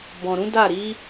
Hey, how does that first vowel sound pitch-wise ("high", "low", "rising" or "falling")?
low